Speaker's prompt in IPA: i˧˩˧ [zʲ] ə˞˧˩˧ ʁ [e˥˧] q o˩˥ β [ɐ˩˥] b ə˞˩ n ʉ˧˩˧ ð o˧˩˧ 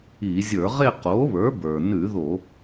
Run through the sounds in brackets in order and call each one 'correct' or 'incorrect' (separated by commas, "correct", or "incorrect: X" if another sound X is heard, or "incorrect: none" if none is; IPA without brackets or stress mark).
correct, correct, incorrect: ə˞˩˥